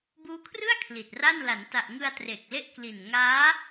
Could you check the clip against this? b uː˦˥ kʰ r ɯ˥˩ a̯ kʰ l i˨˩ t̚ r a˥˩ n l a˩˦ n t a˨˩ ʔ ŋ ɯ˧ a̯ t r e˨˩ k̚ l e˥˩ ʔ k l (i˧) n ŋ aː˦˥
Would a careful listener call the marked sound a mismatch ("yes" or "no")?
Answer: yes